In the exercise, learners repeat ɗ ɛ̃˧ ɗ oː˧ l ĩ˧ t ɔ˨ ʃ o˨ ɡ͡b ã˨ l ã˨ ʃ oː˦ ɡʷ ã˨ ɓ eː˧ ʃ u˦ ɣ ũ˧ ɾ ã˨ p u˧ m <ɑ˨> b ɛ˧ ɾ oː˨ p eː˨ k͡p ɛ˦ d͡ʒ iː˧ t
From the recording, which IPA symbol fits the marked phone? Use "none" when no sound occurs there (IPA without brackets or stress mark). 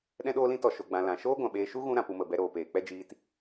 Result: ə˨